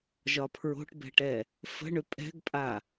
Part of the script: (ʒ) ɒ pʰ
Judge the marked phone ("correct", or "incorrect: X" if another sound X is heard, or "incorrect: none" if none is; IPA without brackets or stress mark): correct